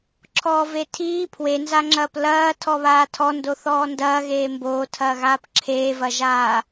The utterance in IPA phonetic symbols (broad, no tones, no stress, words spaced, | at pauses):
ǁʰɔːvetʰiː pʰwenzaŋ͡ǁɐːp lɐː tʰɔβaːtʰɔndo θɔːndɐːɣeː mboːtʰɐːɣaːp ǁʰeːvɐʒaː